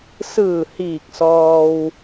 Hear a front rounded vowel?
no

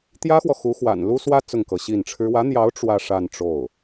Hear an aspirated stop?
yes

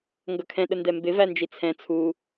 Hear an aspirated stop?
yes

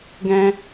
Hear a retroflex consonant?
no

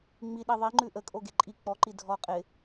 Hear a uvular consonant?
yes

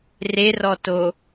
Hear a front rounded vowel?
no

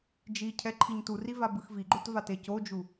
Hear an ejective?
no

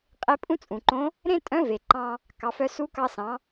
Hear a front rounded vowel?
yes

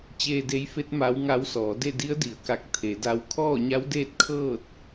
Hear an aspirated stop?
yes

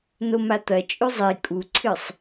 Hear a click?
yes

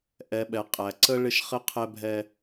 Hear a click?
yes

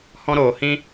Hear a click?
no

